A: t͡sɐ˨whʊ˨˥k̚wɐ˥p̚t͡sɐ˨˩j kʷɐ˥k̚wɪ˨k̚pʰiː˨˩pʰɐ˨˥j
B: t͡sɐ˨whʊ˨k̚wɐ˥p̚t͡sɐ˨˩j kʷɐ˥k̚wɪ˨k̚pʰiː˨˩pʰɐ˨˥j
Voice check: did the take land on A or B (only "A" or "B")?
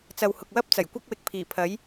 B